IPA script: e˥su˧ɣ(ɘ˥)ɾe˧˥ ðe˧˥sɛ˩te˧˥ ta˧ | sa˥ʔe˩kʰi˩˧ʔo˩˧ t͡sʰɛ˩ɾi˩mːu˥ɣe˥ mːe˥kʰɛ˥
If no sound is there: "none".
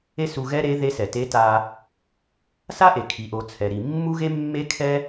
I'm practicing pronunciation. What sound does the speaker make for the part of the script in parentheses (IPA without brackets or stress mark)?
ɛ˥